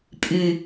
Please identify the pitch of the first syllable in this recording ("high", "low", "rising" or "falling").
low